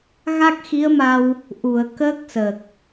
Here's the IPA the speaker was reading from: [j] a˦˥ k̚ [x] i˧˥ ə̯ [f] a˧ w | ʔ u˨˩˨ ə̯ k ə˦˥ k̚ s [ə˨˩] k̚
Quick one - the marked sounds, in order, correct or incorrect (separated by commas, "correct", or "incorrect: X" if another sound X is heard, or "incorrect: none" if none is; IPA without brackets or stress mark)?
incorrect: ɣ, correct, incorrect: m, correct